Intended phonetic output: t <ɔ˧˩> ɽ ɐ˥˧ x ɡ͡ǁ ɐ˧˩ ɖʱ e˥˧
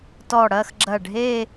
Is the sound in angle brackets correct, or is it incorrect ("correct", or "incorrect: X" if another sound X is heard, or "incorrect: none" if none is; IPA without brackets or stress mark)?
correct